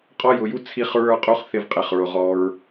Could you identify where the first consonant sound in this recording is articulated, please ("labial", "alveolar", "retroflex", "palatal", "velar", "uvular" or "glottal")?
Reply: uvular